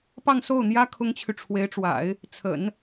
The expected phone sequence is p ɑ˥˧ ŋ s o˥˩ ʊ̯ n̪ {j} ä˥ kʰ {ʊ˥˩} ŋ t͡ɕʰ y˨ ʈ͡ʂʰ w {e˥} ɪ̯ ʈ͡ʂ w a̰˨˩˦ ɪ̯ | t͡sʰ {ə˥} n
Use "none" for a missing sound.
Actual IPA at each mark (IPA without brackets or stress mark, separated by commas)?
j, ʊ˥, e˧˥, ə̰˨˩˦